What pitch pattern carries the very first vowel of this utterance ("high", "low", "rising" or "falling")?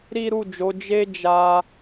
high